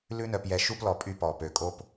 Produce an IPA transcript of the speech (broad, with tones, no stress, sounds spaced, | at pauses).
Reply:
l ʉ˦ n œ˨ p j ɛ˨ ʃ u˥ p l ɔ˨ pʼ y˦ p ɔ˩ p ø˩ kʼ o˦ p